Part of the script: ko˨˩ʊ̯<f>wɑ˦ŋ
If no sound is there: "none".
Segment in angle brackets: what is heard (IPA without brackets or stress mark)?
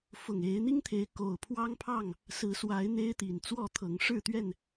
pʰ